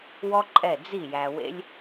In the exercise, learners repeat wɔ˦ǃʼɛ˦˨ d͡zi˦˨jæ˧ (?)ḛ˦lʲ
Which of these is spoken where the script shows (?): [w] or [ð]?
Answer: w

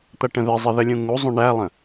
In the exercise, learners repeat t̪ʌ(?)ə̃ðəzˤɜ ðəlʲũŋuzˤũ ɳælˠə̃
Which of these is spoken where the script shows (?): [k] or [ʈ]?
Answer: ʈ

